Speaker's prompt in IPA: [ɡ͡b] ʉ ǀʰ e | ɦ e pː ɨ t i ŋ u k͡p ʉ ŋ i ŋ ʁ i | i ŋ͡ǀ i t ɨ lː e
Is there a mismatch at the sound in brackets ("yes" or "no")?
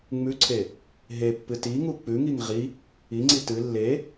yes